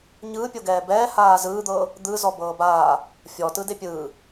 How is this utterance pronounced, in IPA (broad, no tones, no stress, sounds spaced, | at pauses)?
ɲ ɯː pʲ o ɡ ɛː b ɛː h aː z ɯː d̪ ɤː | d̪ ɯ z ɔ b ɤː b aː | fʲ ɔ t ɯ d e pʲ ɯː